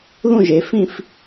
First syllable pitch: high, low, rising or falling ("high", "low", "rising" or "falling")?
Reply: falling